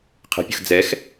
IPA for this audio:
qʰ ə̤ pʲ ə̤ x d͡z ɛ x

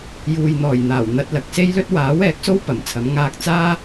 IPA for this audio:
j uː˨ j n̪ ɔː˨˩ j n̪ aː˨˩ w n̪ ɐ˧ t̚ l ɐ˨ k̚ s e˥ j l ɵ˥ t̚ w aː˨˥ w ɛː˨˥ k̚ s o˥ w p ɐ˨˩ m t͡sʰ ɐ˨˥ m ŋ aː˧ k̚ t͡s aː˥

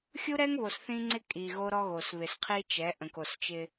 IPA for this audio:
xʲ u˦ ɾ ɛ˦ ŋ β o˨ s θ ĩ˦ ŋ͡ǀ ɪ˦ kʼ i˨ ɣ o˦ ɾ ɔ˦ ɣ o˨ s β ɪ˨ s qʰ i˦ t͡ʃ ɛ˨˦ ʔ ə̃˨ k o˨ s t͡ʃ ɪ˦

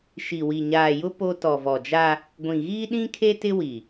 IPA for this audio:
ʃ i˨ w i˨ ɲ aː˨ j ʊ˦ p o˦ t ɔ˨ v ɔ˨ d͡ʒ a˦ | ɡʷ ĩ˨ ɣ iː˦ ɗ ĩ˦ kʰ e˦ t ɪ˦ w i˨

